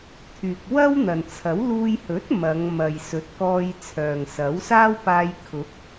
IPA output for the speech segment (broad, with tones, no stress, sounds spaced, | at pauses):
t̪ʰ yː˨ k̚ w ɐ˥ w n̪ ɐ˨ n t͡sʰ ɐ˨˥ w l uː˧ j h ɵ˨˥ t̚ m ɐ˨˧ ŋ m ɐ˨ j s ɵ˨˥ t̚ k ɔː˧ j t͡sʰ œː˨ ŋ s ɐ˨˥ w s aː˥ w p aː˧ j kʰ ʊ˨˥ k̚